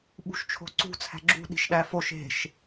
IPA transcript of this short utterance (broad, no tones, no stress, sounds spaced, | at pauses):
ɓ ṳ ʃ t͡ʃʰ o̤ ǀ ṳ t͡sʰ æ̤ ɡ͡ǁ ṳ ɗ i̤ ʃ ɗ æ f o ʃ e̤ ʃ